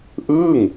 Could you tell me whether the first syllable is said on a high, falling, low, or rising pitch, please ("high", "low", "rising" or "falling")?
falling